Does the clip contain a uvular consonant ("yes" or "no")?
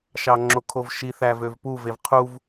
yes